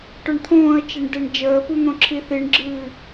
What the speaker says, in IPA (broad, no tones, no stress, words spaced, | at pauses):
ʈœɳt̪ʰõːə̯t͡ʃeɳ deɳd͡ʒəːpu n̪õǁʰiθiɳɡ͡ǁɨː